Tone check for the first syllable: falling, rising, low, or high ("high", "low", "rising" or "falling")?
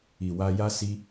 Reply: low